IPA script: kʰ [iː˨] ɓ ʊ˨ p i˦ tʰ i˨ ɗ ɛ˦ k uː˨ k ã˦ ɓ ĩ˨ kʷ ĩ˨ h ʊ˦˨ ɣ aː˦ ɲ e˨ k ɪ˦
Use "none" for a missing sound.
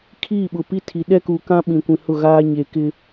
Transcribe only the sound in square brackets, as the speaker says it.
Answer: iː˦˨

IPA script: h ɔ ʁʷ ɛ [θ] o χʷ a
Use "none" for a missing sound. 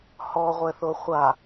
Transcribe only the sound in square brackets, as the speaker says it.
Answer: θ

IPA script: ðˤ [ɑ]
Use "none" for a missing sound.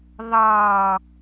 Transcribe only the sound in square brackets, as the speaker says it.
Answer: ɑ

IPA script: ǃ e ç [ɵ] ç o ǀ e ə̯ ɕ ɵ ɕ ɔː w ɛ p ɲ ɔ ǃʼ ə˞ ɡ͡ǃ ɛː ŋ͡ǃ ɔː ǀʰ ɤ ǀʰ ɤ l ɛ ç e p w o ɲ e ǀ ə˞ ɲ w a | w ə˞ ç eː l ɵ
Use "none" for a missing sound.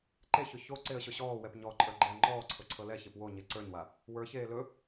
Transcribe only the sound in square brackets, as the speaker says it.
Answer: ɵ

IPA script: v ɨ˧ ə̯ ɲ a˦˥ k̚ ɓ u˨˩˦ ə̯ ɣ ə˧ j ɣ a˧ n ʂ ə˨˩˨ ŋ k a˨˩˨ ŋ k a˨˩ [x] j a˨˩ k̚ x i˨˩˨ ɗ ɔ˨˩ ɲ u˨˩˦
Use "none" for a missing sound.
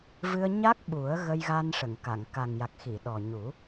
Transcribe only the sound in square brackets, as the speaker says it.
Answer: ŋ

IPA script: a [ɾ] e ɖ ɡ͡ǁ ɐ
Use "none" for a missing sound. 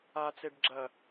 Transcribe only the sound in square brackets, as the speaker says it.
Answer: t͡s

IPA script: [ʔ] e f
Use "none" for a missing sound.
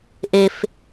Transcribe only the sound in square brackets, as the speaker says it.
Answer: ʔ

